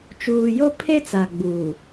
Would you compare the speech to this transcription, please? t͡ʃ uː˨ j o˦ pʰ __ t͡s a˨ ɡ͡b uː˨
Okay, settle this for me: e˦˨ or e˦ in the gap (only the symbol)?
e˦